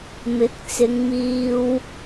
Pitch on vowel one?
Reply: rising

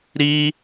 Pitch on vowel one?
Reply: high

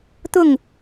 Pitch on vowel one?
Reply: falling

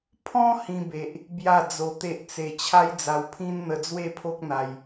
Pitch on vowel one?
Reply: high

